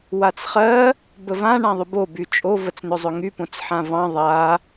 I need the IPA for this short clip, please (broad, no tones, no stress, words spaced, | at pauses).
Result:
wat͡sχɜ | bəvã ɳãðˤʏbo byt͡ʃʼo vət͡snʏzˤʏŋy põt͡sħãvɑ̃ ðˤa